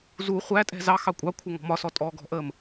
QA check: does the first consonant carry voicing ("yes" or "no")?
yes